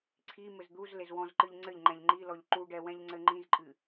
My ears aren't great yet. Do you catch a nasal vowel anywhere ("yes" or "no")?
yes